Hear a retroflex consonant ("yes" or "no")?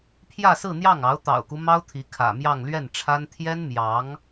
yes